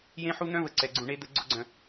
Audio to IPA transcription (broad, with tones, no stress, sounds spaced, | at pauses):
j ẽ˦ ħ u˦ n̪ œ̃˦ v ə˨ ǀ ɛ˨ ɡ͡ǀ ũ˨ ɳ e˦ d̪ ə˦ ɡ͡ǀ ʊ˦ ɡ͡ǀ œ̃˨